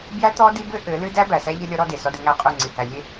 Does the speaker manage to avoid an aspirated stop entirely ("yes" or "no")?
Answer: yes